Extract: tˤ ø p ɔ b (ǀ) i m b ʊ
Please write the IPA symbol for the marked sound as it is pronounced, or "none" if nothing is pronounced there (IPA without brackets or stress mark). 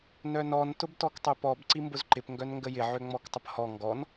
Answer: ǀ